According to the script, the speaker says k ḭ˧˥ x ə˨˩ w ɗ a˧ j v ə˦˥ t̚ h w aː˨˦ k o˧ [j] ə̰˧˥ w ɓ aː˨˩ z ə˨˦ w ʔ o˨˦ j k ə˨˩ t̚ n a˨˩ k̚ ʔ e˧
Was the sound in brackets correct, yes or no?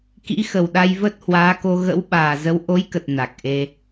no